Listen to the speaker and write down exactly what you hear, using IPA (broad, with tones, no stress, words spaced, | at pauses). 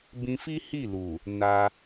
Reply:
bĩ˧fi˦ hi˦˨lu˨ | na˧